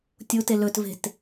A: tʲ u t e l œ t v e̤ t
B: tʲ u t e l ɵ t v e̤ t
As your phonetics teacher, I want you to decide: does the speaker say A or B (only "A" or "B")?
B